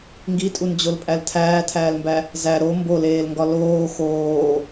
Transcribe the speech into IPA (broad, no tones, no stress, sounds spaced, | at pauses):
ŋ ɡ i tʼ u n d͡ʑ o l pʼ æ l tʰ æː tʰ æː l m b æ | z æ ɾ o m b o l eː l ŋ ɡ ɒ l oː x oː